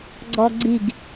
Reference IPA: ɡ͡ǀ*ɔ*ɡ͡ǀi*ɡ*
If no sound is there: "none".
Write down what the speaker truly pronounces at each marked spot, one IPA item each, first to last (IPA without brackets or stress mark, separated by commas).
ɔ, ɡ